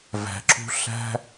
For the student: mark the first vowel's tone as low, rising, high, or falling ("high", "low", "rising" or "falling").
low